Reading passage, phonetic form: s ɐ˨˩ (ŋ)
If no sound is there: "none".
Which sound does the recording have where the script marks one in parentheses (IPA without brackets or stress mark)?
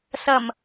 m